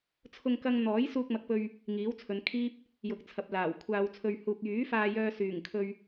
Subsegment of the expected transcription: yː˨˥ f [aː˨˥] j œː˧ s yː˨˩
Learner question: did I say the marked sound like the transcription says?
no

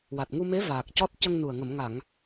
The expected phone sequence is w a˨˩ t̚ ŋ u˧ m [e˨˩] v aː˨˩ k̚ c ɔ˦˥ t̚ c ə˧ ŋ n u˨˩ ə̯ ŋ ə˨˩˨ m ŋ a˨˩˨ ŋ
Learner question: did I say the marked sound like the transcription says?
no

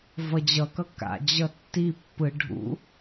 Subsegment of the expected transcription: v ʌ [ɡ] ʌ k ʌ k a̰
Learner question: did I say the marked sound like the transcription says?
no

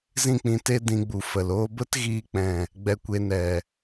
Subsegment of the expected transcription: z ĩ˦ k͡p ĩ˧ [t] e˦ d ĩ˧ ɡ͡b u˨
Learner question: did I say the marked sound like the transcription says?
yes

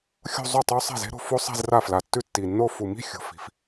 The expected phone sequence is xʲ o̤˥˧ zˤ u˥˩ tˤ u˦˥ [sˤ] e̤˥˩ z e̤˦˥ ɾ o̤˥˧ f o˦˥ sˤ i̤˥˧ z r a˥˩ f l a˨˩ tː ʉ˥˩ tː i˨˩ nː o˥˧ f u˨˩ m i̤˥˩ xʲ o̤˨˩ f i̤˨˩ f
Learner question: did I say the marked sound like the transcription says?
yes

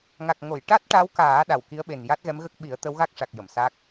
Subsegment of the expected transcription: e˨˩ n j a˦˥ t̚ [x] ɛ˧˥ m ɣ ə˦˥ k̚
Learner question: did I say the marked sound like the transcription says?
no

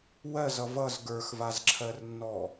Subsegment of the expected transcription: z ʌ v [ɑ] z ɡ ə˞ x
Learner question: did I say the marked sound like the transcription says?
no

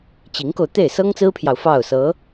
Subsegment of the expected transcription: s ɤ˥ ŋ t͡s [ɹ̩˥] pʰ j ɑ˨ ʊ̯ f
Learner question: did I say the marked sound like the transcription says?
yes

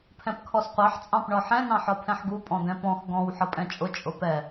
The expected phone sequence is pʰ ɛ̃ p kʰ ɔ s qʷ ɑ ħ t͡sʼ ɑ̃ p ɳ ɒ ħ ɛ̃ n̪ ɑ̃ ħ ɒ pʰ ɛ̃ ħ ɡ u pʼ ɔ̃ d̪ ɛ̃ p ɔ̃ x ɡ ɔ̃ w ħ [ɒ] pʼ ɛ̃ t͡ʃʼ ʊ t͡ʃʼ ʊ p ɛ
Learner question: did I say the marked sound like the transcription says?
no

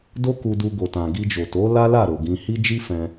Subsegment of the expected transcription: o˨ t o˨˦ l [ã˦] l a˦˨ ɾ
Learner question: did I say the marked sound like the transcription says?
no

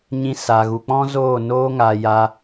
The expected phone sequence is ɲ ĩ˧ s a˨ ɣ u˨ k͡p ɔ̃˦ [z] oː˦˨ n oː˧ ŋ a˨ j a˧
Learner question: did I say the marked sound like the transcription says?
yes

